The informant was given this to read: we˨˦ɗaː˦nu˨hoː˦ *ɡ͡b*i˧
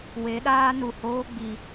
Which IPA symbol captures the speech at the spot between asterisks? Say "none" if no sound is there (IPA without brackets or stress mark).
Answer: ɡ͡b